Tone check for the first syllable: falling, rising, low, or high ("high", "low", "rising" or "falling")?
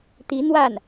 rising